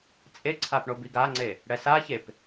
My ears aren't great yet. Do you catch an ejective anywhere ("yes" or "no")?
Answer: yes